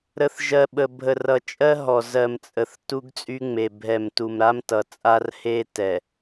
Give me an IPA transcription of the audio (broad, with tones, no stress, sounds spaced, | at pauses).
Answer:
ɾ ə˨ θ ʒ ɜ˨ ɓ ə˨ bʱ ə˨ r ʌ˨ t͡ʃʼ ɜ˦ ɦ ɔ˨ z ɜ˨ m t͡sʼ ə˨ θ t u˦ ɡ t͡sʼ y˦ ŋ͡m e˨ bʱ ɛ˨ m t u˨ m ɾ a˦ m t ʌ˨ t͡sʼ a˦ r h e˦ t ɛ˨